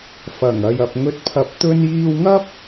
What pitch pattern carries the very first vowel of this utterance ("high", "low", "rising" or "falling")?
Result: low